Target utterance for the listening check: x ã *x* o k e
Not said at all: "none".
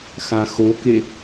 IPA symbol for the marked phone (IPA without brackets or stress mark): x